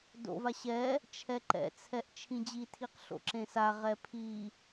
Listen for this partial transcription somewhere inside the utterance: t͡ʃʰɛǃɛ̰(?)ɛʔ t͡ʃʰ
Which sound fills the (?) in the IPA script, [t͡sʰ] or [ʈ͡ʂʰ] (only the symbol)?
t͡sʰ